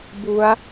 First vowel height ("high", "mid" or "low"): high